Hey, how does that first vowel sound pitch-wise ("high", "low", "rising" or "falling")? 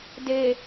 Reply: low